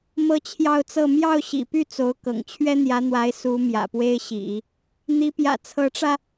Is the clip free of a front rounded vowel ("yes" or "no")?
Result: no